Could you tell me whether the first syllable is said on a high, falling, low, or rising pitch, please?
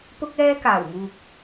high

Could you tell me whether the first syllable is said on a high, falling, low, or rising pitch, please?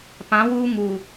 rising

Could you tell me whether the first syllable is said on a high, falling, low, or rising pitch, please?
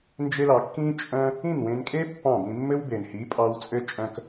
high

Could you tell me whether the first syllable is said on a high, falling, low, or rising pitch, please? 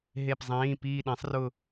falling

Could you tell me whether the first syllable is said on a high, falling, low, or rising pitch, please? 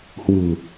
low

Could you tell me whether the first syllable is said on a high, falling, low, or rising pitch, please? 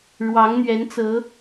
rising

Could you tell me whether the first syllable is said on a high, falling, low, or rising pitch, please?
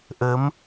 rising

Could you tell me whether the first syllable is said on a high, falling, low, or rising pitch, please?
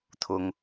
high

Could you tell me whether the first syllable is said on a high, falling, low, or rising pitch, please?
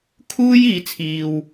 high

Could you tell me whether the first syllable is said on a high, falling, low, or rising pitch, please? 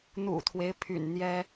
low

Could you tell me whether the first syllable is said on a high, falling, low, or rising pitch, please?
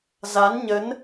rising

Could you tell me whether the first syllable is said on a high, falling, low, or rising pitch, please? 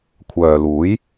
low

